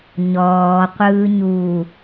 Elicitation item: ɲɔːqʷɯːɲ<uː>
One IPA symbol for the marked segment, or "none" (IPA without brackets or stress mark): uː